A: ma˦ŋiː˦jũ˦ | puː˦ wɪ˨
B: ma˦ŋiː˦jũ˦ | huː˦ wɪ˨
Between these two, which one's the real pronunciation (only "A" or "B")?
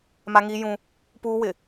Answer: A